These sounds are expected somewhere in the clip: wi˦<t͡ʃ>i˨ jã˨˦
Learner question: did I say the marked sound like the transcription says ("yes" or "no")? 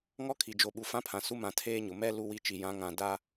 yes